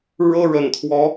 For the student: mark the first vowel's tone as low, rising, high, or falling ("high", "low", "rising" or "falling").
high